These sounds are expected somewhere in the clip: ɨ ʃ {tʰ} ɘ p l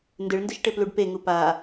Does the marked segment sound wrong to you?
yes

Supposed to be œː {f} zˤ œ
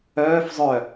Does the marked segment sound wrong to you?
no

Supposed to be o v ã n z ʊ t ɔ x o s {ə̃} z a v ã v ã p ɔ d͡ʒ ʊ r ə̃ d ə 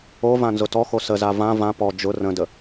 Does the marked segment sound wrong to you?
yes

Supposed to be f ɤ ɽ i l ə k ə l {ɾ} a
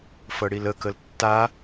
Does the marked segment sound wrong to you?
yes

